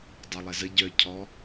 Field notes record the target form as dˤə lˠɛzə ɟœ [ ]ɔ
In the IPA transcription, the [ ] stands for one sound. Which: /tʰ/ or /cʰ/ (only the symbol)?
cʰ